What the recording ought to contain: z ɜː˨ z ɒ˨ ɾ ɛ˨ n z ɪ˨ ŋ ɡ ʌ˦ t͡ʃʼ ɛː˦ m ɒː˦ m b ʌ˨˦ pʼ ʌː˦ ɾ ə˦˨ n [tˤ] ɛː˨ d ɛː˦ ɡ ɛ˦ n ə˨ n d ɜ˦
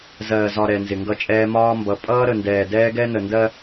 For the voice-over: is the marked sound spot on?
no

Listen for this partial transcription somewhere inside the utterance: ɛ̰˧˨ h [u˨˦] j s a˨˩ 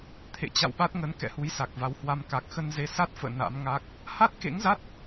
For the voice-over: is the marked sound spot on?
yes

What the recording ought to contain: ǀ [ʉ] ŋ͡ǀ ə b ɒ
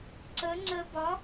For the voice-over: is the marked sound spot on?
no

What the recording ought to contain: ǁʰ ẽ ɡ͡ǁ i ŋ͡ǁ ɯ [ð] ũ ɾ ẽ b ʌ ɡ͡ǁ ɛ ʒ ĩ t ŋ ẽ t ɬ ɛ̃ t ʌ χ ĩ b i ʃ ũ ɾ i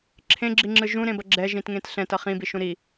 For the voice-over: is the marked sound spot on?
no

